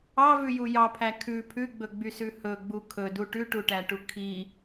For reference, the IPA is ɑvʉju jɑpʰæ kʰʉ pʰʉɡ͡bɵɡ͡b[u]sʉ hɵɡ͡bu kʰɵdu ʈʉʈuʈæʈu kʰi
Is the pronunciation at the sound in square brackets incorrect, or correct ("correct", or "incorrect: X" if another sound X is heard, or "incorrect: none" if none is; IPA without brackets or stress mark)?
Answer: incorrect: y